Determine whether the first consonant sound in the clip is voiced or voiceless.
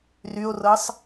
voiced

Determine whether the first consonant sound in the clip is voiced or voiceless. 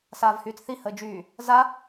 voiceless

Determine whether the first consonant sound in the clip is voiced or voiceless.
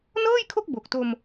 voiced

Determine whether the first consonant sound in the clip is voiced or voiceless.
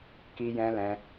voiceless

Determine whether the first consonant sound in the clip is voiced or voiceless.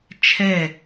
voiceless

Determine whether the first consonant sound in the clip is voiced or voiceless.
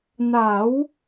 voiced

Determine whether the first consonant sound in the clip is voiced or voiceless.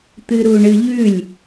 voiceless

